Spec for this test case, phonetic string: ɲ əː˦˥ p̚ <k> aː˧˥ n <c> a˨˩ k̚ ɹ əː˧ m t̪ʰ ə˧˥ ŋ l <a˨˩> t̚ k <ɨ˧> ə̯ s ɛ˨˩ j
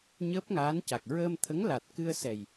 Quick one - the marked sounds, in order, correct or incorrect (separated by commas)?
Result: incorrect, correct, correct, correct